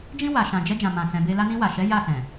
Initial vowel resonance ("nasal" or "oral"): nasal